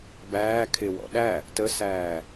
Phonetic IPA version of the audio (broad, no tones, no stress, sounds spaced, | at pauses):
b æː kʰ ɪ w ɔ̰ ɗ æ | t ə s æː